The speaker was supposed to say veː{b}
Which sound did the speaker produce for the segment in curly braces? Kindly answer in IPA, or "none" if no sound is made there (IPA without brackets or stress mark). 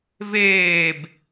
b